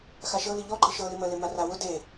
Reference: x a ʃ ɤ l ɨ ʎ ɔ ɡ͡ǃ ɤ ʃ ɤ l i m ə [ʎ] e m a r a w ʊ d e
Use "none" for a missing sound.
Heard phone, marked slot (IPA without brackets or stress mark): l